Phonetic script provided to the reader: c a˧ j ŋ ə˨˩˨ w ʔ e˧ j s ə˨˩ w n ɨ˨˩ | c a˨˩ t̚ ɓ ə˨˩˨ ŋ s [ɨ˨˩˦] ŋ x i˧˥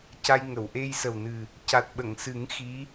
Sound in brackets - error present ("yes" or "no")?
no